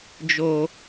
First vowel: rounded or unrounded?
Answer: rounded